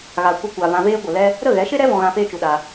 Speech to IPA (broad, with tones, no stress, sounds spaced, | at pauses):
ɣ a˨ kʷ ə˧ kʷ a˨ v ã˧ v eː˦ ɡʷ ə˨ l ɛ˦ | ɾ ə˦˨ ɣ ɛ˨˦ ʃ e˦ ɾ ɛ˦ v ɔ̃˧ ɣ ã˧ f eː˦ t͡ʃ u˧ ɗ a˧